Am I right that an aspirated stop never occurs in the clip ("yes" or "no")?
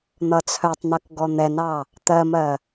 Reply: no